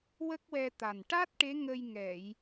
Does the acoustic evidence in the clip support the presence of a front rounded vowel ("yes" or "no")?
no